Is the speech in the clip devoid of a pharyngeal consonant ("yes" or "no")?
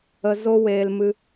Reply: yes